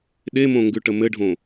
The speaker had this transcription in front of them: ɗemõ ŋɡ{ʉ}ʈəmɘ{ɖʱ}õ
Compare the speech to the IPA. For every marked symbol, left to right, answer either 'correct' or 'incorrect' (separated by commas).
correct, correct